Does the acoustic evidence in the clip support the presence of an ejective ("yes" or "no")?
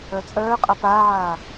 yes